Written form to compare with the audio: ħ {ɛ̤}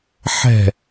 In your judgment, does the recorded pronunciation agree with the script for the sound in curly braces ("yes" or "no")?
yes